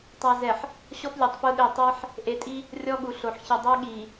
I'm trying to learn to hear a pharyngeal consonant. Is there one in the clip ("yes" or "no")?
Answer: yes